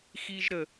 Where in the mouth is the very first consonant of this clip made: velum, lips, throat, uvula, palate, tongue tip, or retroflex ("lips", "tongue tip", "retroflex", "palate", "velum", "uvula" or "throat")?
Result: velum